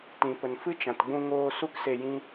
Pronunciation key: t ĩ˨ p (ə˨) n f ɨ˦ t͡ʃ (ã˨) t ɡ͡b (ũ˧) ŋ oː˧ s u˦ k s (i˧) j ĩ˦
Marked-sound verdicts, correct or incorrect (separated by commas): correct, correct, correct, incorrect